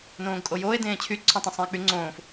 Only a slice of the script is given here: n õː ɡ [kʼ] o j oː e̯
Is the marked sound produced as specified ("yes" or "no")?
yes